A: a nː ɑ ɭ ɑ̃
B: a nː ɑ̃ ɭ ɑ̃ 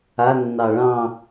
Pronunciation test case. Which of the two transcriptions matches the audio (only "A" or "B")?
A